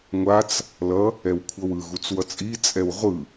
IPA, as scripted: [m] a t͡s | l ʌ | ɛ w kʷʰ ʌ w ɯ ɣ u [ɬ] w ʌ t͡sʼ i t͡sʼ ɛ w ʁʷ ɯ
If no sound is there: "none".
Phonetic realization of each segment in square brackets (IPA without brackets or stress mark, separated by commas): ŋʷ, t͡s